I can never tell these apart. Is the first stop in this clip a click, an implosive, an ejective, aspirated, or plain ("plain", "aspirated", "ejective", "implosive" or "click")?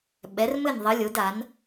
implosive